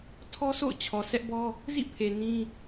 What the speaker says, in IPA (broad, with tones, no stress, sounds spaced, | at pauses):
tʰ ɔ˦ sʰ o̰˦˨ ʊ̯ t͡ɕʰ ɔ˨ s ɛ˦ ʔ b ɔ˦ | z ḭ˦˨ pʰ e˨ n ĩ˦